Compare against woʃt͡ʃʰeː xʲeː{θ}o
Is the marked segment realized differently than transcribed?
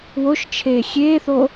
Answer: no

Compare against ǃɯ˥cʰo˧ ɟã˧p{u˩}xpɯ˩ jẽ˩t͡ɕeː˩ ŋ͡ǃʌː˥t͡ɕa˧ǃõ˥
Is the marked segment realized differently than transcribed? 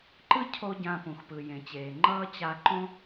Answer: yes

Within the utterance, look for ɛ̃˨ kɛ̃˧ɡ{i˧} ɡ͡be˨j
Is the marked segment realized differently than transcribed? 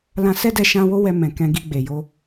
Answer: no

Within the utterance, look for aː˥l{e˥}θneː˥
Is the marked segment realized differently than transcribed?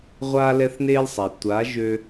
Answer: yes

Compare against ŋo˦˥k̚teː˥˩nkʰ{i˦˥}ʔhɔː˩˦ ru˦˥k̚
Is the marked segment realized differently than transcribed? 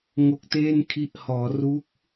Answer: no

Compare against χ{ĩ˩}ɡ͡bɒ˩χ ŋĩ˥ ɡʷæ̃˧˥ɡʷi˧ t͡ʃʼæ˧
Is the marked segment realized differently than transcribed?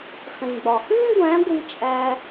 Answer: no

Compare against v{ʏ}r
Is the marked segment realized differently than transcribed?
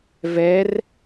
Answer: yes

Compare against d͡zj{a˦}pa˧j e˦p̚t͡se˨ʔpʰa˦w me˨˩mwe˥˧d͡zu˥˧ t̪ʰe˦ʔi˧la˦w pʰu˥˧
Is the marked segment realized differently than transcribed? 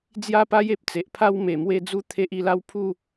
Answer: yes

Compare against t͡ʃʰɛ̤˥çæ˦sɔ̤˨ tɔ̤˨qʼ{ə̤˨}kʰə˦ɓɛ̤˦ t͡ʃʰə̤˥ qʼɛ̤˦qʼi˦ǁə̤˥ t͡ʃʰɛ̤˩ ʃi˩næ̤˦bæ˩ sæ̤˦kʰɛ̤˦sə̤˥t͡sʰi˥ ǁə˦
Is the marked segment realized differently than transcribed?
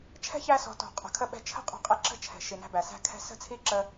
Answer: no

